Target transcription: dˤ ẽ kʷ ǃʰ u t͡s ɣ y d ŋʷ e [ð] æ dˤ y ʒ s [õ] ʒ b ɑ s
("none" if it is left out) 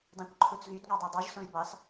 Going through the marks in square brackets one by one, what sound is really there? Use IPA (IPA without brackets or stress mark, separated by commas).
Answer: dˤ, õ